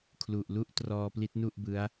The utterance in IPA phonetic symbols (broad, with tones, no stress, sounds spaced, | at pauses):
kʰ l u˨˩ ʔ l u˥˩ ʔ t r ɔː˧ p l i˦˥ t̚ n u˥˩ ʔ b ɯ˦˥ a̯